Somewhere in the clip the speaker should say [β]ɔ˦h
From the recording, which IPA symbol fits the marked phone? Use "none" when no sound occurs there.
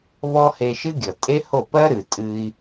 β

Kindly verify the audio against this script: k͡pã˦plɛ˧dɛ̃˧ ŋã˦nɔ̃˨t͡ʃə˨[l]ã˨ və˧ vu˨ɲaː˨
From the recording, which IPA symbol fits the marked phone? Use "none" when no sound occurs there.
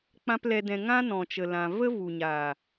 l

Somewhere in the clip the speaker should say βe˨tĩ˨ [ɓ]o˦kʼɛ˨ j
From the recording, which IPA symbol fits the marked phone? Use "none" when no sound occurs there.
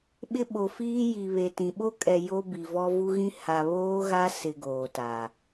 ɓ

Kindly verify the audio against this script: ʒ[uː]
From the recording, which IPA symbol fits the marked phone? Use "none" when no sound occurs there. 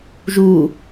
uː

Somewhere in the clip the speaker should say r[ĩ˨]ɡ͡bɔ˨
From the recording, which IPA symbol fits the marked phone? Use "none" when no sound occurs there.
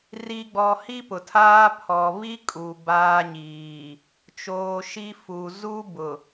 i˨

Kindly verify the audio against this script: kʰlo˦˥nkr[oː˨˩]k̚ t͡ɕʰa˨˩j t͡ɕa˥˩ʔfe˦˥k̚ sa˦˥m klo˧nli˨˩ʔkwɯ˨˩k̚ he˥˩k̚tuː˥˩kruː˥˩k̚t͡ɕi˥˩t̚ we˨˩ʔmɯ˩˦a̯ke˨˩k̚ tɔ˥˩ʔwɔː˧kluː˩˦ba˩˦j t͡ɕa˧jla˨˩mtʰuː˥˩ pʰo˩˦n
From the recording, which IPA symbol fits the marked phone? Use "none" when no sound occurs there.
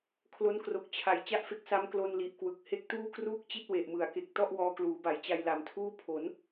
o˨˩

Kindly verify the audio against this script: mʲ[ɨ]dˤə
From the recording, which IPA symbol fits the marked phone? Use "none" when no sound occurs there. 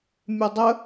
ɨ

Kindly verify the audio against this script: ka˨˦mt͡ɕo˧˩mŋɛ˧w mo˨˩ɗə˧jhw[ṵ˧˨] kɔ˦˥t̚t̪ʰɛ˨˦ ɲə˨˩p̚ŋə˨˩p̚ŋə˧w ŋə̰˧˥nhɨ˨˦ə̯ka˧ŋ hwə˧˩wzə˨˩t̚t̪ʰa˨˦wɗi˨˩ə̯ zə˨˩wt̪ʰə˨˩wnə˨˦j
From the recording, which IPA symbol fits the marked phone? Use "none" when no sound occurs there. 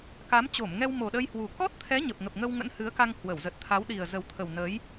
u˨˩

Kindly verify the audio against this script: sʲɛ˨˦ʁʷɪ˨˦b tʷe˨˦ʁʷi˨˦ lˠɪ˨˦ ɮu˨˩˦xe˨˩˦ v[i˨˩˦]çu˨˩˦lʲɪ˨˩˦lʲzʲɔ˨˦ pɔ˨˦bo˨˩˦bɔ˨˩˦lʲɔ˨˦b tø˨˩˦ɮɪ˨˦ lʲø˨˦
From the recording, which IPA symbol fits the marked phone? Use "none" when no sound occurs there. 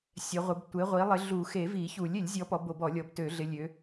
i˨˩˦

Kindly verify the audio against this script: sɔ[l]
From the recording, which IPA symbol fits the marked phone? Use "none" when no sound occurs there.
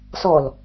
l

